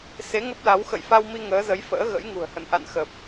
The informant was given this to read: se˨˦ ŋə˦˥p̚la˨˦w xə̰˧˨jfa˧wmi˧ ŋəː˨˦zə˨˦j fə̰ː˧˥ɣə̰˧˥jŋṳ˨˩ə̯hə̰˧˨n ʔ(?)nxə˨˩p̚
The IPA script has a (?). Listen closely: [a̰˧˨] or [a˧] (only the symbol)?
a̰˧˨